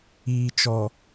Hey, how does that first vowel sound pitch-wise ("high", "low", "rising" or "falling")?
low